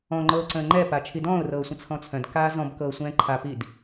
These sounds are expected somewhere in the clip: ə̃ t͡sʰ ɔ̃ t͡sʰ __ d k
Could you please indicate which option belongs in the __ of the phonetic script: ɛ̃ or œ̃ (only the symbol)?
œ̃